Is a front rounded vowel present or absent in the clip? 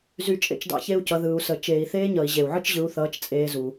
present